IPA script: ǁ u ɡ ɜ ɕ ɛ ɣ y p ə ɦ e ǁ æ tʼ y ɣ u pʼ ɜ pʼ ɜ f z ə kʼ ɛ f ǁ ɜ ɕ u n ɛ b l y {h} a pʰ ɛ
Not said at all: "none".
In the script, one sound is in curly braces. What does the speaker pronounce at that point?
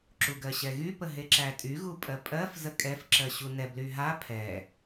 ɦ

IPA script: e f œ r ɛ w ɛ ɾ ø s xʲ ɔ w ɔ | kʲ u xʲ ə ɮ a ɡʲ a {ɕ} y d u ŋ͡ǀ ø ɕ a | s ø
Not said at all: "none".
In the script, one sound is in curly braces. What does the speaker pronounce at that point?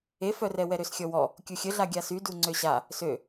s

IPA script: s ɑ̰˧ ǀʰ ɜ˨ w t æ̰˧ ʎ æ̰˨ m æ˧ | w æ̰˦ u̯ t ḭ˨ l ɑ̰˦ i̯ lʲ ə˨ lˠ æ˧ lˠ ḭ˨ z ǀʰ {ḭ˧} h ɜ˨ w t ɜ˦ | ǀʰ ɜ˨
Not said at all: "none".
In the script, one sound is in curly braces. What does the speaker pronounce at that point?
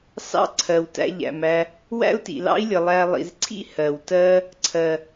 ḭ˦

